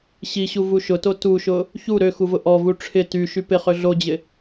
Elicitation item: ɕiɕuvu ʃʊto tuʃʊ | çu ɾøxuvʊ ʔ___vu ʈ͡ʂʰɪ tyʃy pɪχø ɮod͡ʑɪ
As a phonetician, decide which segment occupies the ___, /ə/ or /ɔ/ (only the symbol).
ɔ